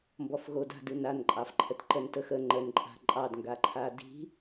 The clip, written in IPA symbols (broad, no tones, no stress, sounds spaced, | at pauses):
m b ɔ f ɣ o d a̤ d ɨ n a n ǃʼ ɑ f ǃʰ ə t ǃ ə n t ə x ə ŋ͡ǃ ə n ǃʼ a̤ ǃʼ ɑ d ŋ ɡ a ǃʰ a d i̤